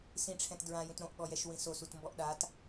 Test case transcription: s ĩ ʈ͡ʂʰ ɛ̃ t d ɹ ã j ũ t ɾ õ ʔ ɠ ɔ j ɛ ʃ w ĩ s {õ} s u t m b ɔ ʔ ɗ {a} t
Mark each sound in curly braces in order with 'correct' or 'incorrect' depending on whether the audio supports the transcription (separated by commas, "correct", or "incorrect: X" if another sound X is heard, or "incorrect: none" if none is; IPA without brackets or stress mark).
incorrect: o, correct